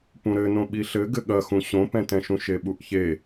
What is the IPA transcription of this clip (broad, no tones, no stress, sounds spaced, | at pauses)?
p ũ ɾ ɘ n õ ɓ i ɬ ɘ ɡ ɘ ɠ ɐ x ũ ɕ õ p ɛ̃ t ɛ̃ ʃ ũ ʃ e ɓ u ʔ ç e